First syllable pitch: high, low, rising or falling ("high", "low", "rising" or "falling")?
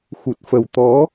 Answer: low